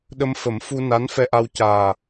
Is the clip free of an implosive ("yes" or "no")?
no